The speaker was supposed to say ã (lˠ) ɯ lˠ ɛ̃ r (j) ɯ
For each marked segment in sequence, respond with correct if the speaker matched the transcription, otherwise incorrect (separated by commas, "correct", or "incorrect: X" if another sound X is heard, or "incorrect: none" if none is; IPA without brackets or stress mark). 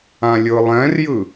incorrect: lʲ, correct